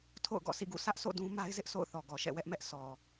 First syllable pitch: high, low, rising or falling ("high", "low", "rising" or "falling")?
falling